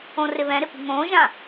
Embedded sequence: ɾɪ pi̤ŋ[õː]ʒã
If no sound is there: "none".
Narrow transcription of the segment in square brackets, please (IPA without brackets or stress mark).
õː